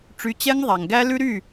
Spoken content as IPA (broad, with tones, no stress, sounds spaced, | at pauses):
ʈ͡ʂ y˨˥ t͡ɕ ɛ˦˥ ŋ ðˤ æ˩ ŋ ɡ æ˦˥ l ʉ˦˥ ɾ y˥˩